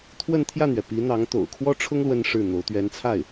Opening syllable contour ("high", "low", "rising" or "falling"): falling